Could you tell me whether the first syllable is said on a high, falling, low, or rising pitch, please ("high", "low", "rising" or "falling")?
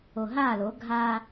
low